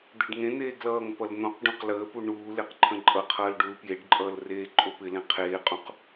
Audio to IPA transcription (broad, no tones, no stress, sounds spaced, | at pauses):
d̪ e ɖ ŋ ẽ n̪ eː ɡ l ʌː ŋ p ʌ l n̪ õ q ɖ ũ q l əː p u ɳ uː l e q ǃʰ ə̃ ǃʼ ʌ qʰ ʌː l ɖ u l p j e ɖ ǃʼ ʌː l r eː ǃʼ o p ɪ l ẽ qʰ eː qʼ ũ q